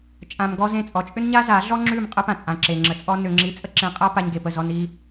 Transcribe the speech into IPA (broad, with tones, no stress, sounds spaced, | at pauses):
t͡ʃʼ ã˧ m ɡ ɔ˦ z ẽ˦˨ t͡sʼ ɔ˨ t͡ʃʼ ʏ˦ n ɲ a˦ z a˨˦ ɮ ɔ˦ ŋ͡ǁ ʉ˦˨ m qʼ ə˦ p ã˨ t͡sʼ ã˨ ǁ e˨ ŋ͡ǁ ə˧ t͡sʼ ɔ˦ n ʏ˧ ŋ͡ǁ i˧ t͡sʼ ə˦ ǁ ẽ˧ qʼ a˦ p a˧ ɲ ɡ e˨ p ə˦˨ z ɔ˧ n i˧